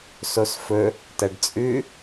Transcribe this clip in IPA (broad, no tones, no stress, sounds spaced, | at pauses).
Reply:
s o s f ɵ | t ɐ ɖ t͡sʼ ʉ